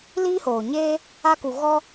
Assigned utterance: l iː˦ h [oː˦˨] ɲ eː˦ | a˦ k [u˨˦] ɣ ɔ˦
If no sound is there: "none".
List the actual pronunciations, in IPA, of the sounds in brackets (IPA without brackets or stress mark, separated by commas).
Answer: oː˨, u˧